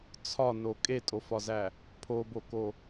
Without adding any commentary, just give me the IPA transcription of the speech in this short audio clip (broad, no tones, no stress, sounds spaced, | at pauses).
t͡sʰ ɒ n o kʼ e tʼ o f ɒ z æ | pʰ o b o k o